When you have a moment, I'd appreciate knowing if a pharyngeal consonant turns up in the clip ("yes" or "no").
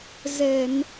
no